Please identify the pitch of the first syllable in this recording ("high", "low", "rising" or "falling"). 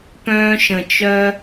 high